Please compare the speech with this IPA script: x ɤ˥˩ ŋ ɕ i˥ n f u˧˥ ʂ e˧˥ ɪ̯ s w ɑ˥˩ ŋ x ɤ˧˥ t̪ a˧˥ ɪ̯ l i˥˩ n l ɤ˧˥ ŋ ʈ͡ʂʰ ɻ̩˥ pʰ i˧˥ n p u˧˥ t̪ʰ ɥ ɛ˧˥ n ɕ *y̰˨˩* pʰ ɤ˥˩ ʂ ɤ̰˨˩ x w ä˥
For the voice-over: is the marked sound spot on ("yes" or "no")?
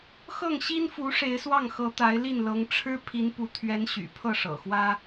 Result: yes